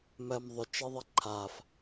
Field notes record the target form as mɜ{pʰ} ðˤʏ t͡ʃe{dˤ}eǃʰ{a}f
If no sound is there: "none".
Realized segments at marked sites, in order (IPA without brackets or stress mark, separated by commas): m, ðˤ, a